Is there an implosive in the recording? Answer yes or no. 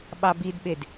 yes